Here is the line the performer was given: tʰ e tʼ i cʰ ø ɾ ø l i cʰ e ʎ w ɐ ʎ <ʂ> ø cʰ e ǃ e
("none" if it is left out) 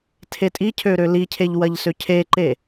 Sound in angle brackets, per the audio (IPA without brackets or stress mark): s